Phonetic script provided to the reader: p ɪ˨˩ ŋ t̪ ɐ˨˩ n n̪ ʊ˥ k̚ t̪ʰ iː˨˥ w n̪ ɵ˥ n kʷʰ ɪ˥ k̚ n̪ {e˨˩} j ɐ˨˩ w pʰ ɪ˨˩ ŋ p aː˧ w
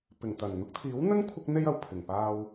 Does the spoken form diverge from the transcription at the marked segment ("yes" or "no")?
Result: yes